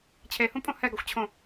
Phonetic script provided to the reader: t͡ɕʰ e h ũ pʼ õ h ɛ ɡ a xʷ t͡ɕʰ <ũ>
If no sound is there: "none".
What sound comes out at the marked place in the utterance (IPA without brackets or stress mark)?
õ